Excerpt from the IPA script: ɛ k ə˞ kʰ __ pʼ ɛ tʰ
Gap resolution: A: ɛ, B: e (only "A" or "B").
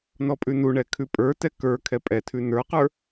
A